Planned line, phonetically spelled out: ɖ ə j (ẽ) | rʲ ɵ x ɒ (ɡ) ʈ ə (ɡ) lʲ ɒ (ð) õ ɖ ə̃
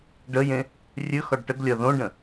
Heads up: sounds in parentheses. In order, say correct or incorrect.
correct, incorrect: ɖ, correct, correct

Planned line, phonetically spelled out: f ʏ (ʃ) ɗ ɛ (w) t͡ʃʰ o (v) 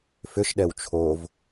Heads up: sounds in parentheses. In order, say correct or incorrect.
correct, correct, correct

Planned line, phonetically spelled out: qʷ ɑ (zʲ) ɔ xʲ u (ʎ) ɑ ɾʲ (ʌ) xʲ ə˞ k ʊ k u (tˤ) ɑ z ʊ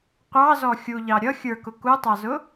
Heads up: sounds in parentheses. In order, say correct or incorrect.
incorrect: z, correct, correct, correct

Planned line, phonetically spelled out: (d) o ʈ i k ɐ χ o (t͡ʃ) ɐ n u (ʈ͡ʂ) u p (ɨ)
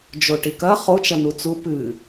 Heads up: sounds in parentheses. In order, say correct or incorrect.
incorrect: d͡ʒ, correct, incorrect: t͡s, correct

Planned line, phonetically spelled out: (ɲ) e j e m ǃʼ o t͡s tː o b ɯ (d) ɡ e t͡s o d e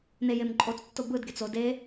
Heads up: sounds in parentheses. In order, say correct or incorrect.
incorrect: n, correct

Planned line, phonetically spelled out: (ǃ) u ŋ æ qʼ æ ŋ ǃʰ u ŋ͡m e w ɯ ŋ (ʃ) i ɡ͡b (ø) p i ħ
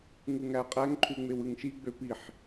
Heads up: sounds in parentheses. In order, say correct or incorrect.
incorrect: ŋ, correct, correct

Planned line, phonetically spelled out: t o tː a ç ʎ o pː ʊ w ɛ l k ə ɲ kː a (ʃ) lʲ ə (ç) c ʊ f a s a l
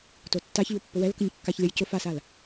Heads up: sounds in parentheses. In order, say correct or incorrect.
incorrect: ç, incorrect: j

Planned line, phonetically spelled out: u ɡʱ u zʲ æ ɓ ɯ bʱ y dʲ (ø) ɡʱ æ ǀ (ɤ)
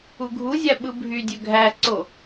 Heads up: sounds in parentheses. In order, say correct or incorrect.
correct, incorrect: o

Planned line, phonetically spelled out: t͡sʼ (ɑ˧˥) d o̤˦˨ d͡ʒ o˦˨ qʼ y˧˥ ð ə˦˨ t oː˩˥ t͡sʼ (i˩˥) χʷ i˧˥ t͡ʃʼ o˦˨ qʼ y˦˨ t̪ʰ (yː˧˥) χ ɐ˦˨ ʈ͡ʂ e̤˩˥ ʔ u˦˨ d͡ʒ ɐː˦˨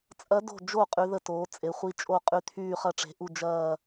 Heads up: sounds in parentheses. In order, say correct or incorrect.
incorrect: ɐ˧˥, incorrect: e˩˥, incorrect: yː˦˨

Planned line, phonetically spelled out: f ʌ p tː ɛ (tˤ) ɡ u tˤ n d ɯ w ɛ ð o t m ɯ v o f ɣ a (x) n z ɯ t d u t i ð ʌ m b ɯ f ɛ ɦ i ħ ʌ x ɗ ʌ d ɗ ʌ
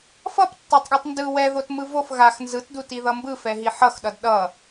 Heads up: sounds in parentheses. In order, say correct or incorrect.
correct, correct

